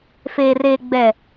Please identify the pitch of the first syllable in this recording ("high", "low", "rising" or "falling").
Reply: low